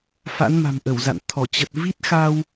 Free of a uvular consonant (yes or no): yes